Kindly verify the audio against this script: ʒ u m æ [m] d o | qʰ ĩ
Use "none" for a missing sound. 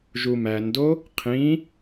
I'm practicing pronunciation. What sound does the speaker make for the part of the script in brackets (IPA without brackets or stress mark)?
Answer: n